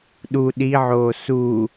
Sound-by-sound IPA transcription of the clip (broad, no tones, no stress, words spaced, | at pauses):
ɗu ɗiʕoː su